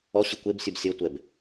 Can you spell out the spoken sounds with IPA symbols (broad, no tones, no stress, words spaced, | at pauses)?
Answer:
ɔɕɯ kʷebsʲub sʲɤtʷɛb